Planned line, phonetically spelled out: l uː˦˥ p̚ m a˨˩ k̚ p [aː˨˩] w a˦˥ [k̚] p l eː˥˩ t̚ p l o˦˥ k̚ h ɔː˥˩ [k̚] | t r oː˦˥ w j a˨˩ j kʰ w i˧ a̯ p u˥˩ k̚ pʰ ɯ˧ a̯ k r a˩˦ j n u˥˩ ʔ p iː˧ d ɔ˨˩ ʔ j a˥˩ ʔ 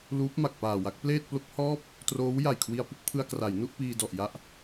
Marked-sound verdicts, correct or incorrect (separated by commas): correct, correct, incorrect